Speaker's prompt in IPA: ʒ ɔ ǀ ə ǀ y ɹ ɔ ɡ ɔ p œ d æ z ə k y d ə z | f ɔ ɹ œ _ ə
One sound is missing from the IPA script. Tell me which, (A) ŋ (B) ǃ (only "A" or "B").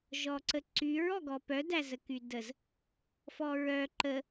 B